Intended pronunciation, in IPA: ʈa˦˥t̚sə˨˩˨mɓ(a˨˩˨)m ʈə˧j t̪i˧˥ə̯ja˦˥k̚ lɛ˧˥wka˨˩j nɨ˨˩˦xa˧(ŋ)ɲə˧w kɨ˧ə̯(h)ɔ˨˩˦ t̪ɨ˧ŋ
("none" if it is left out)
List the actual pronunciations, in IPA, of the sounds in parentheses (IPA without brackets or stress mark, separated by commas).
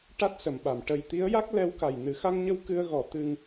a˨˩˨, ŋ, ɣ